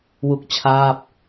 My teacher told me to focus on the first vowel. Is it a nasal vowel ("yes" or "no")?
no